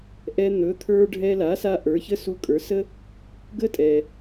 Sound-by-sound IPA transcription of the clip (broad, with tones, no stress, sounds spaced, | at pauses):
ʔ ɛ˧ n̪ ɵ˩˥ t̪ʰ ə˞˧ ɖʱ ɛ˧ l a˩˥ s a˧ ʔ ə˞˩˥ ç ə˥ s u˧ kʼ ə˞˩˥ s ə˥ | ɡ ə˥ tʼ ɛ˩